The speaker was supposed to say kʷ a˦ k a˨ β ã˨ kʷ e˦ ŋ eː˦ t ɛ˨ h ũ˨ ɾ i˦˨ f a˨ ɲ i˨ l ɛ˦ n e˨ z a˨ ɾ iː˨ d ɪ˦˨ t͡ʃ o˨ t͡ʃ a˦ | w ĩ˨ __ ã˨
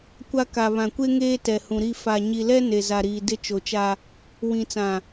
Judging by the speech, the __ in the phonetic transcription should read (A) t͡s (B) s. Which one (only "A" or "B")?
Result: A